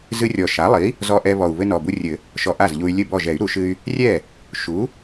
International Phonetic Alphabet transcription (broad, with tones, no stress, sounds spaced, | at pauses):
z ɨ˧ rʲ ɔ˨˩ ʃ a˩˥ lˠ i˩˥ | z ɔ˧ ʔ ɛ˧ β ɔ˨˩ u̯ β ɘ˧ n ɔ˨˩ b u˧ rʲ ɘ˨˩˦ | ʃ ɔ˧ ʔ a˥˩ z ʎ u˧ y̯ lʲ ɘ˥˩ b ɔ˥˩ ʒ ɛ˨˩˦ y̯ ɾ u˨˩˦ ʃ ɨ˧ y̯ | rʲ ɛ˥˩ | ʃ u˩˥